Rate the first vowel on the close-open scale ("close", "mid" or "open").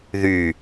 close